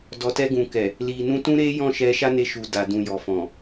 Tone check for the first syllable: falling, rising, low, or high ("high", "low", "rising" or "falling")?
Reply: low